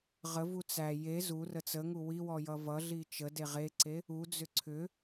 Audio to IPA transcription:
ʁ ə v u t͡s æ j e z u r ə t͡s ə ŋ u w i w ɔ j ʌ v ʌ ɮ i t͡ʃ ə d e ʁ e ǀ e | u d͡z ʏ ǀʰ ʏ

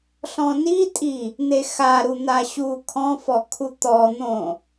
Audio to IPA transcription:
ɬ ɔ̃ n i tʼ i | n̪ e x a ɾ u n̪ a ɕ u kʰ ɔ̃ f ɔ kʰ u t̪ ɔ n̪ õ

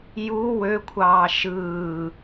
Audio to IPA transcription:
j u w ø kʷʰ ɑː ʃ ɯː

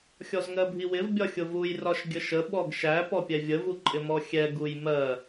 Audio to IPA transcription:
xʲ ɔ z ŋ ɜ bʱ i w ɪ v bʲ ɒ xʲ ʊ v u j r ɒ ʃ ɡʲ ə ʃ ə ɓ ɔ ɡ ʃ æ p ɔ pʲ ɛ vʲ ə v u ǃʼ ɪ m ɔ xʲ ɛ ɡ u j m ɜ

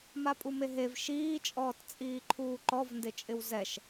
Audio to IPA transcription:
m a pʼ u m e ɦ e v ʃ iː t͡ʃʼ ɔː t t͡sʼ iː ǃʰ uː ǃ ɔ v n d ɪ t͡ʃʼ ɪ w z ɛ ʃ

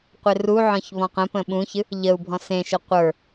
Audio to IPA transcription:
qʷ ɪ r u ʕ ɔ̃ ç β ɔ̃ q ə̃ p ə̃ ɓ ũ ç ɨ | ʎ ə u̯ bʱ ɔ̃ s ẽ ʃ ə qʷ ə˞

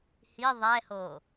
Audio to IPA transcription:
h i ðˤ ɛ h o

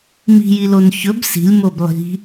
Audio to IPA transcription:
m i̤ j i l o n ç ɵ b s i̤ lʲ m o b lˠ i̤

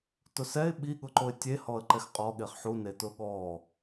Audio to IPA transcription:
t ʊ s ɛ ɪ̯ ɓ i ɠ ʊ ǃ o ɪ̯ tʲ e h ɔ ə̯ ǃ ɛ x qʼ ɔ ɠ e χ ħ u n e t ʊ ɠ ɔ

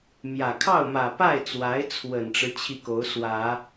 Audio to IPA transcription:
m j ä˨˩ kʰ ɑ˥˩ ʊ̯ m ä˨˩ p a˥˩ ɪ̯ t͡s w a˧˥ ɪ̯ t͡sʰ w ə˨˩ n ʈ͡ʂ ɻ̩˦ t͡ɕʰ i˥˩ k o˧˥ ʊ̯ s w ä˨˩˦

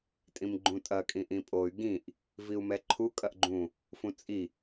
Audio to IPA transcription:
tʼ ĩ m ɡ͡ǃ ũ tʼ ɐ kʼ ĩ ʔ ĩ pʼ o y̯ ɡ ĩ ʔ | v i u̯ m ɛ ǃʰ u kʼ ɐ ʔ ɡ͡ǃ ũ | f ũ t͡sʼ i

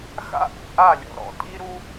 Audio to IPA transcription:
x a̰˦ ʔ ṵ˨ ʔ a˦˨ lʲ ɔ̰˨ ɾ ɔ̰˨ tʼ i˦ ɾ u˦

